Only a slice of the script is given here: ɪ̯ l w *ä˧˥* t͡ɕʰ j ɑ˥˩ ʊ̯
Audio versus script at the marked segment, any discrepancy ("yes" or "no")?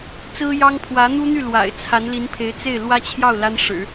yes